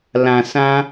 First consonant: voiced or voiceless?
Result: voiced